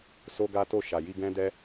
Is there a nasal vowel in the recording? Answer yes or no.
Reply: yes